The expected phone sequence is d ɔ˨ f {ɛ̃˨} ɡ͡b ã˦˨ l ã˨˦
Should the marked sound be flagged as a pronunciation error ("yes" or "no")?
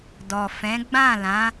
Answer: yes